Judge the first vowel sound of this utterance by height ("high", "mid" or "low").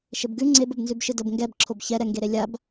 mid